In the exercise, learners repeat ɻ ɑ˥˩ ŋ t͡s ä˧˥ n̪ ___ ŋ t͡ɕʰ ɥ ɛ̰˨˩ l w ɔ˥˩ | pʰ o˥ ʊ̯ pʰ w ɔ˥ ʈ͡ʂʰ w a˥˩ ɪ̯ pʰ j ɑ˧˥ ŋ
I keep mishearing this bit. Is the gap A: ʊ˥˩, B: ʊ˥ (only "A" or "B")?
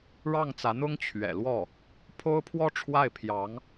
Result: B